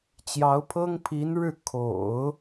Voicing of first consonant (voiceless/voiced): voiceless